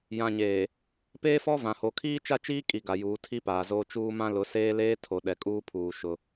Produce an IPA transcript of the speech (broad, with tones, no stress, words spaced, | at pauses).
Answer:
jã˨ɲeː˨ | peː˦fɔ˦vã˨ho˨ kʰiː˦t͡ʃa˦ t͡ʃiː˦kʼi˨ ɡa˨juː˨˦tʰi˦ paː˨zoː˦ t͡ʃuː˦mã˦ lʊ˨˦seː˦leː˦ tʰo˨ɗɛ˨kʼuː˦pʰuː˨ ʃʊ˦